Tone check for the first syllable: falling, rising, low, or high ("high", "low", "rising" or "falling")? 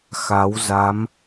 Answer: rising